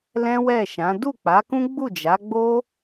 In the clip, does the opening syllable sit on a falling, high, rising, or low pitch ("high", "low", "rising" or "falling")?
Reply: high